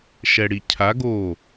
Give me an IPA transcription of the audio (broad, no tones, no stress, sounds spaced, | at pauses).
ʃ ɛ ɽ i cʰ a ɡ o